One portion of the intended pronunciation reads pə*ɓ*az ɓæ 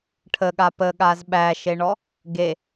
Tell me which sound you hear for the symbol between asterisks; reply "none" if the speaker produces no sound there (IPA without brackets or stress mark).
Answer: ɠ